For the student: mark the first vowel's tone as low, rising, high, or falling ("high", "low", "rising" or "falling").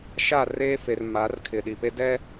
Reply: falling